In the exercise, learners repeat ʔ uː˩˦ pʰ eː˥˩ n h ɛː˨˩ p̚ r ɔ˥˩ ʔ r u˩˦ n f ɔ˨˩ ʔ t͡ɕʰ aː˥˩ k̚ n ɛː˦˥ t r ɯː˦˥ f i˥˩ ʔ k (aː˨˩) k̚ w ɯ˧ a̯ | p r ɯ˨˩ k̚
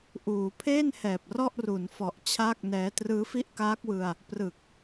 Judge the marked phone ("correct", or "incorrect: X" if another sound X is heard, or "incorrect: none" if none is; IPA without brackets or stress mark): incorrect: aː˦˥